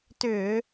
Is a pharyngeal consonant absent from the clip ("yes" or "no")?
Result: yes